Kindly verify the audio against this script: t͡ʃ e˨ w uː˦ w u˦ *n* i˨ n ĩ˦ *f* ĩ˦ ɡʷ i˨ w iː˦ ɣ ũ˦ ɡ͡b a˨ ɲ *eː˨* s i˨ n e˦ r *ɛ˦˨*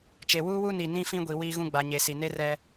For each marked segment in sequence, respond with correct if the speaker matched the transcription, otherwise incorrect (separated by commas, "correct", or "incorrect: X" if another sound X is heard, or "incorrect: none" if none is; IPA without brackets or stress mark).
correct, correct, incorrect: e˨, incorrect: ɛ˦